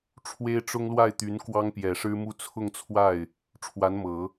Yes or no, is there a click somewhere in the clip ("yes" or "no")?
no